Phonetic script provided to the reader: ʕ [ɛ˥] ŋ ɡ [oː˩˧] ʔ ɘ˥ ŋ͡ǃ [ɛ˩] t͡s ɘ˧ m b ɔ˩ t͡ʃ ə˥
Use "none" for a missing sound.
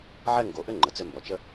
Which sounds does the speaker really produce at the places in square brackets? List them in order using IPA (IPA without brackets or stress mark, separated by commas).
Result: ɛ˥, o˩˧, ə˩